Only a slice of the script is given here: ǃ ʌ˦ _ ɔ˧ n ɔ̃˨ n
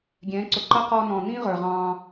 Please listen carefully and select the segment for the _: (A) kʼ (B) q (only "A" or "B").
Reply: B